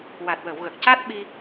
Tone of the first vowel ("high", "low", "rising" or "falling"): low